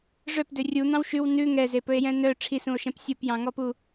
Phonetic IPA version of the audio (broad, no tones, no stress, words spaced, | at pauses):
ʐœpdø rʲun̪ɑ̃w ʃʉw nʉ ŋɛzepɵe̯jɛ̃ nœ ʈ͡ʂʰisũo̯ʃɛ̃p sʲupjɑ̃ŋɔpu